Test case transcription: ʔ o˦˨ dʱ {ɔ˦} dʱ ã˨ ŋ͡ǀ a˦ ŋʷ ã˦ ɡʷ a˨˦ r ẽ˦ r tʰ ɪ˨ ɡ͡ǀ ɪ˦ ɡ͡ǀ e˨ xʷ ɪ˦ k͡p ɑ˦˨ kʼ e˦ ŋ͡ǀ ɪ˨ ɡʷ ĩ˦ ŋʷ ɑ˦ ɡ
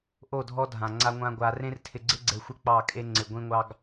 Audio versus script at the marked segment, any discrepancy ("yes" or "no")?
no